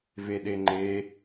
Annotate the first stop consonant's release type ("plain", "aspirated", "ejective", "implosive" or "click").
implosive